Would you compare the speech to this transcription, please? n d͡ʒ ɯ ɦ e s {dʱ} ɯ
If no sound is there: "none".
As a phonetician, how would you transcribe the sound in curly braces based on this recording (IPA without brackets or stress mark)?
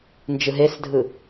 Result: dʱ